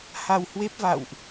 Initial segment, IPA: h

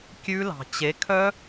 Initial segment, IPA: kʲ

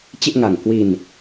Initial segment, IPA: t͡ɕ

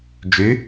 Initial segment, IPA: d͡ʒ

